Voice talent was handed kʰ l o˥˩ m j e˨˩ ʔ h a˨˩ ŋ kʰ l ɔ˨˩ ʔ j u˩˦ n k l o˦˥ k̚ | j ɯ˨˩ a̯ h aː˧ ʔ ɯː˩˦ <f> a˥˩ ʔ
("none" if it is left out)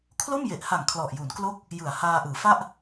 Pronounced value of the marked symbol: f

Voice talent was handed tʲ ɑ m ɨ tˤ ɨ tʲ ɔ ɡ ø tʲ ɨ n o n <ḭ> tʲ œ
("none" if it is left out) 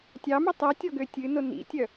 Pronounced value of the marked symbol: ḭ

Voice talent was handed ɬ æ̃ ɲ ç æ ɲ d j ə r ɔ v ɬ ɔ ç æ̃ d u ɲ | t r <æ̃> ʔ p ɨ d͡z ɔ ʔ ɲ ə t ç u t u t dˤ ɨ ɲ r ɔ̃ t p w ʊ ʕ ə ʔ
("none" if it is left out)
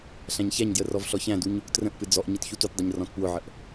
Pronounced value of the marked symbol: ə̃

